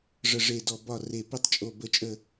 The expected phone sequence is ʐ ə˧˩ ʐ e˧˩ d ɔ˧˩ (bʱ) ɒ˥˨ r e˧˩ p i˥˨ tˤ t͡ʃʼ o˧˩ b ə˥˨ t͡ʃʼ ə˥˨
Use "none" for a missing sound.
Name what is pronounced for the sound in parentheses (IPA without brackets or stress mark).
b